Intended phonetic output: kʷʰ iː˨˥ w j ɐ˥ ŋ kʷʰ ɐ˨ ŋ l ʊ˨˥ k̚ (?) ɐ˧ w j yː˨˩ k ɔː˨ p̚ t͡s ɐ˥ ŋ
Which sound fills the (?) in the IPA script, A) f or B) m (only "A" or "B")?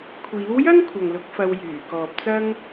A